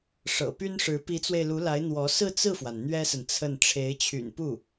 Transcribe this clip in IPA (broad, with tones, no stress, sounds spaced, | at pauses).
ʂ ɤ̰˨˩ p y˥ n ʂ ɻ̩˧˥ p i˧˥ t͡s w e˧ ɪ̯ l u˧˥ l a˧˥ ɪ̯ n̪ w ɔ˧˥ s ɹ̩˥˧ t͡s ɹ̩˥˩ f w a˩ n n̪ ɥ ɛ˥ s ə˨ n t͡sʰ ə˥˩ n ʈ͡ʂʰ e˧˥ ɪ̯ t͡ɕʰ y̰˨˩ n p u˥˩